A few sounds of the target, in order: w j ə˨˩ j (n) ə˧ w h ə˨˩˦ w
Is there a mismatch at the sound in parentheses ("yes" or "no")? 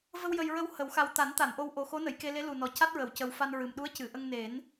yes